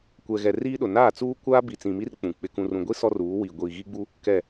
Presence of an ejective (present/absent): absent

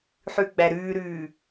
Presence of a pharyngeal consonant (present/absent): present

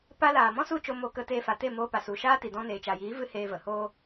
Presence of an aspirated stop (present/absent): absent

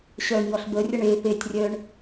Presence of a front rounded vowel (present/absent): present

